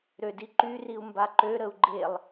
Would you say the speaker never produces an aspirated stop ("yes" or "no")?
yes